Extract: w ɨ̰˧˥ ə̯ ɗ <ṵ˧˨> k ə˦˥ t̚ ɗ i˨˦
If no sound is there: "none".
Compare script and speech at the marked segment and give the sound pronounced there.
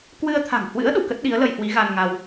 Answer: ṵ˧˨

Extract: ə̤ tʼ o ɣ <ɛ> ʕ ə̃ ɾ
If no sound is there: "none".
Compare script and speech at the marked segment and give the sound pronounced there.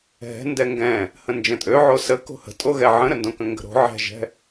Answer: ɛ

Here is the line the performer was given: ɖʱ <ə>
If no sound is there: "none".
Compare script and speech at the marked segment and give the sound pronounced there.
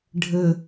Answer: ə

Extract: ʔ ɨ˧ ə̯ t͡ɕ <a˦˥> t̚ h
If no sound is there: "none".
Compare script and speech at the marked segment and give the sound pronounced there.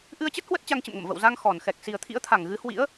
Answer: ə˦˥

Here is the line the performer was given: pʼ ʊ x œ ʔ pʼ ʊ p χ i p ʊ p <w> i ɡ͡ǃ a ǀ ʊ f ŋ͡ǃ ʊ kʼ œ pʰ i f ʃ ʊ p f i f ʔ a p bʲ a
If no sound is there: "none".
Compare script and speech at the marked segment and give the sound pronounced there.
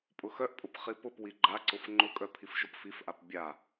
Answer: w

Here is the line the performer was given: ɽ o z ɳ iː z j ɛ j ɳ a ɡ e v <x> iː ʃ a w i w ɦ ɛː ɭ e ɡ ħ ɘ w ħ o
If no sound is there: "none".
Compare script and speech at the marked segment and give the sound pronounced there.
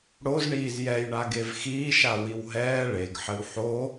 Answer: x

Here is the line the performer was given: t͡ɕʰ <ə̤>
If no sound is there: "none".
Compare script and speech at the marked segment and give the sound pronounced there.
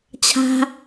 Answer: a̤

